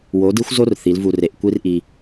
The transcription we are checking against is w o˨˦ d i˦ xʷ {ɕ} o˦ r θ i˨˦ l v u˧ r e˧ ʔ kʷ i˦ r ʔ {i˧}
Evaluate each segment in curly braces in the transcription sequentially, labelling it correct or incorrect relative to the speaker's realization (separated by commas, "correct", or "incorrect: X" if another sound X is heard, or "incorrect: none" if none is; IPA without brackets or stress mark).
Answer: incorrect: z, correct